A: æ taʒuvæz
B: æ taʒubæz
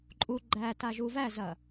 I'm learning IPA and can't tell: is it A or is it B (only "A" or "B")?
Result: A